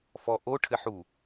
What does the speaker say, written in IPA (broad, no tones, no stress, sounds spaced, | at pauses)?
f ɔ ʔ o ʈʰ ɘ ħ u